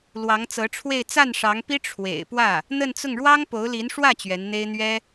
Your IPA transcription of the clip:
l w ɑ˧˥ ŋ t͡s ɤ˧˥ ʈ͡ʂʰ w e˥˧ ɪ̯ t͡s a˥˩ n ʂ ɑ˧˥ ŋ p i˥ ʈ͡ʂʰ w ḛ˨˩ ɪ̯ p w ä˥˩ | n̪ ə˥˧ n t͡s ʊ˥˩ ŋ ɻ w ɑ˥ ŋ p o˧˥ ʊ̯ l i˧˥ n ʂ w ä˥˩ t͡ɕ ɥ ɛ˧˥ n n̪ e˥ ɪ̯ n̪ ɥ ɛ˥

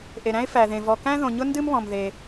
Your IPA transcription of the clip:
ʔ e˩ ɾ æ̃˥ ɪ̯ f æ˩ ð ẽ˩ v ɔ˩ k æ̃˥ ð õ˩ ɲ ʊ˥ n d ɨ˥ m β ɔ̃˩ m ð e˩

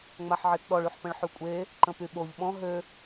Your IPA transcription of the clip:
ŋ͡m a ħ ʕ e t ɗ ɔ ɭ y ħ p ə̃ ɭ ħ y kʷʼ e | ǃ ə̃ p y ɓ o ʎ ɓ ɔ̃ ɦ ø

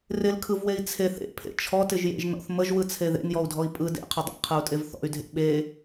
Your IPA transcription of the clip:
r ɪ l kʰ ɯ v w e i̯ t͡sʰ e θ ḛ pʰ ḛ t͡ʃʰ ɔ t ɪ ʒ j ḛ ʒ n ɔ̰ θ m ə ʒ w ɯ t͡sʰ e ð ḛ n j ɔ u̯ dʱ ɔ i̯ pʼ ɯ d ḛ qʰ ə dˤ ḛ qʰ ɯ u̯ tʼ e v θ ɔ̰ y̯ dʱ ḛ ɓ e

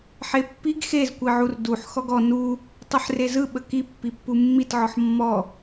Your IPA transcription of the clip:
ħ e pː i ɡ x e z kʷ i ʕ u r d u ħ x ɔ ɡ ɔ n u | tˤ e ħ r e z ɯ ɓ ə k i pː i pː u mː i t ʕ ɔ ħ mː ɔ

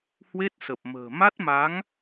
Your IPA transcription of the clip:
h w e˦˥ t̚ s ə˨˩ p̚ m ə̤ː˨˩ m a˦˥ t̚ m a˨˦ ŋ

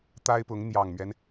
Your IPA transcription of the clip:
t̪ a˥ ɪ̯ p ʊ˧˥ ŋ n̪ j ɑ˨˩ ŋ m ɥ ɛ˦ n

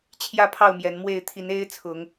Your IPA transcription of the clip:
t͡ɕʰ j ä˥˨ pʰ ɑ˥˨ ʊ̯ m j ɛ˨˦ n m w e˥˨ ɪ̯ t̪ʰ i˨˦ n e˦ ɪ̯ t͡sʰ ʊ˨˦ ŋ

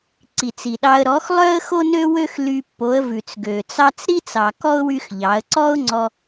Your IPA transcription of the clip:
ǀ i˨ t͡s i˨ ɗ ɑ˧ ə̯ ɾ ɔ˨˦ x lˠ œ˦ ə̯ x o˦ n ø˦ w ø˦ x l y˧ pː o˨˦ ə̯ v ʉ˨ t͡s ɡ ø˨ t͡s ɑ˦ t͡s ɾ i˦ t͡s ɑ˨ k ɔ˦ ʊ̯ w y˦ x ʎ ɑ˨˦ ə̯ ǀ ɔ˦ ʊ̯ ŋ͡ǀ ɔ˧

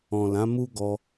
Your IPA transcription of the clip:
ɔ̃˨ l ã˨˦ m u˦ ɡ ɔ˧

